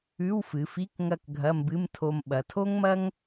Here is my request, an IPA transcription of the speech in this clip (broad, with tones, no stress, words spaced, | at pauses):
ʉ˧˥˧wfɨ˩˧fi˧˥˧k ŋɐ˥˧kɡʱɐ˧˥˧mbɨ˧˥˧mtʰo˧m ɓɐ˩˧tʰo˥ŋmɐ˥ŋ